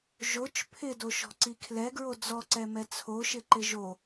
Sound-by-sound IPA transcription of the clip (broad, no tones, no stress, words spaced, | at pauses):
ʒot͡ʃ pʰɪdo ʃɔ̤ǀikʰlɛɡɹo d͡zɔǀɛmɛ t͡sʰoʃɪ ǃɪʒo